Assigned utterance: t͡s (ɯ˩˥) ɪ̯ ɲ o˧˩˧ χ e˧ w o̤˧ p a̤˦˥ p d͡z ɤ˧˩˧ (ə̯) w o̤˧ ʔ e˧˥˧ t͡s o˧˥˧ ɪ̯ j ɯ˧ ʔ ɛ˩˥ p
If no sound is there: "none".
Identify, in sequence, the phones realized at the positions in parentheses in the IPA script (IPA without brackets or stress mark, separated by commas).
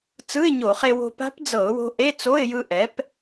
ɯ˧˥˧, ʊ̯